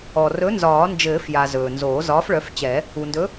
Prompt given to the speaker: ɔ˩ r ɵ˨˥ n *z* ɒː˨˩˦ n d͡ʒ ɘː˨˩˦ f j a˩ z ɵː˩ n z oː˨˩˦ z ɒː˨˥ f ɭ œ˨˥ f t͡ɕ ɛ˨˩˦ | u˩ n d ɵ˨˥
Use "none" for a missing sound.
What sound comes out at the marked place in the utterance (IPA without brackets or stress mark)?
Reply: z